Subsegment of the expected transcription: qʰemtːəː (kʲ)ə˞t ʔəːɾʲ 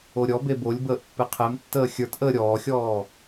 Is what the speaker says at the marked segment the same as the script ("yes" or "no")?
no